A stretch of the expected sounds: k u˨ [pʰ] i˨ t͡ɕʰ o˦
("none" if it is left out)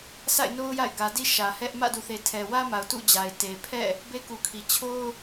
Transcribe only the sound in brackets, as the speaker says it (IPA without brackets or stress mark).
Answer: kʰ